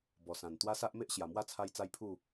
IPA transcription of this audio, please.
b ɔ˨˩ s ã˨˩ n t̪ w a˦ s a˦ ʔ m e˦ ʔ ɕ j a˨˩ m w a˥˧ t͡sʰ a˧ j t͡s a˦ j pʰ u˥˧

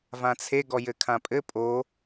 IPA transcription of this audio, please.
v ã t͡sʰ e ɡ ɔ j ɘ kʰ ã pʼ ɘ pʼ o

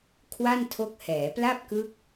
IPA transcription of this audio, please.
kʰ w a˥˩ n tʰ o˦˥ k̚ h ɛː˩˦ p l a˥˩ p̚ k ɯ˦˥ k̚

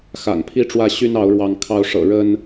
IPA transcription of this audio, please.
x a̰˨˩ n pʰ i˥˨ ʈ͡ʂ w ä˥˨ ɕ y˦ n ɑ˨˦ ʊ̯ ɻ w ɑ˨˦ ŋ kʰ ɑ˨˦ ʊ̯ ʂ ɤ̰˨˩ ɻ ə˦ n

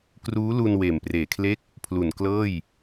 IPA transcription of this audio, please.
k r uː˦˥ l u˧ n w eː˨˩ m p r eː˨˩ kʰ l e˥˩ k̚ | pʰ l u˨˩ n k l ɤː˥˩ j

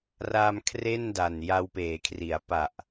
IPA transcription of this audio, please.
r a˧ m kʰ r e˥˩ n d a˨˩ n j a˧ w p eː˩˦ kʰ r i˩˦ a̯ p a˨˩ ʔ

